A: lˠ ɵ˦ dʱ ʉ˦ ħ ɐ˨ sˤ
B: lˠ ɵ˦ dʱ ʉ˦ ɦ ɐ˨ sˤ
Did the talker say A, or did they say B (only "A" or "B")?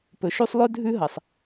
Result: B